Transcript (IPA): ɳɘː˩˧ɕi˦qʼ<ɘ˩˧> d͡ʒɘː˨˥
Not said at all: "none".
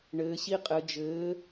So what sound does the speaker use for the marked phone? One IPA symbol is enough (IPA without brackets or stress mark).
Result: ɘ˩˧